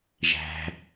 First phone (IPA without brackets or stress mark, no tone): ʒ